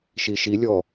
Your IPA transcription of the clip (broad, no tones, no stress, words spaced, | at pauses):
ʃiʃilʲɔ